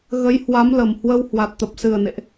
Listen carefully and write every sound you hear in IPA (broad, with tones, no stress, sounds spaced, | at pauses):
ɣ ə˨˦ j h w a˨˦ m l ə˨˩ m h w ə˧ w h w a˨˩ t̚ t̪ ə˨˩ p̚ s ɨ˨˩ ə̯ n ḛ˧˨ ʔ